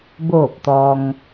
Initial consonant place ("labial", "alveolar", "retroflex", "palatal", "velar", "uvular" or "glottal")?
labial